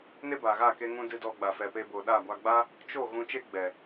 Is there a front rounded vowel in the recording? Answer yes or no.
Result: no